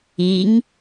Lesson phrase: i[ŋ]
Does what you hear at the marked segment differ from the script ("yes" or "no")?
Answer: no